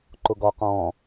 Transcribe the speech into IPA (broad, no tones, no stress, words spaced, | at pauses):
ǃʊɡɔ qɔ̃ː